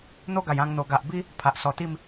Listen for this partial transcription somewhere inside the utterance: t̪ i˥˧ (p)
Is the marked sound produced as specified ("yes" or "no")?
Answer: no